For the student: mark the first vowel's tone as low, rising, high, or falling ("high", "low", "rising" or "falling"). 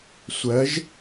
rising